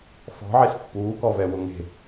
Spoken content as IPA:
f ɔ̤ ʕ e s pː uː k ɔ v ɛ w ʊ ŋ e̤

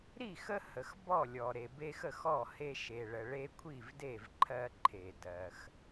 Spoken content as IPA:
ɾ i˥˨ x ə˦ h ə˨ x b ɔ˥˨ lʲ ɔ˨ ɾ e˨ b e˦ x ə˥˨ x ɔ˥˨ h e˦ ʃ e˨ ɭ ə˨ ɭ e˦ kʷʰ i˥˨ v d e˥˨ v ǃʰ ɜ˦ ǃʰ e˨ d ɜ˨ x

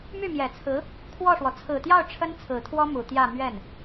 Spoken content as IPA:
m y˥˩ m j ɛ˨˩ t͡sʰ ɹ̩˧˥ | kʰ w ɔ˥˩ ʂ w ɔ˩ t͡sʰ ɹ̩˨˩ t̪ j ɑ˥˩ ʊ̯ ʈ͡ʂʰ ə˥ n t͡sʰ ɹ̩˨˩ t̪ʰ w ɔ˥ m u˨˩ t̪ j ä˥˧ m ɥ ɛ˥˩ n

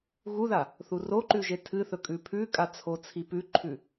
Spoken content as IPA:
ɣ u ð a | θ u r o ǃ ʉ ʒ e tʰ ɨ θ ɵ kʼ ʉ pʰ ʉ kʼ a t͡sʰ o t͡sʰ i p ʉ ǃʰ ʉ

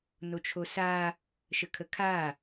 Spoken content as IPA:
n o t͡ʃʰ o s a | ʃ ə kʰ ə kʰ a

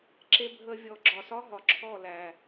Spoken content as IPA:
ǁ e˧ bʱ ə˧ vʲ ɔ˨ ɡ͡ǁ ɒ˨ s ɒ˦ ɦ ɒ˨ ǁʰ ɔ˦˨ l æ˨

